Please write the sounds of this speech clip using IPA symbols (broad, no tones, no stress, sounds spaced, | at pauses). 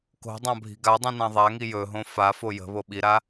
k o̤ dˤ ã bʱ i̤ ɡ a dˤ ĩ n ã ðˤ a ŋ i j ɵ ɦ õ f a f o j ə̤ β o ɓ i ɾ a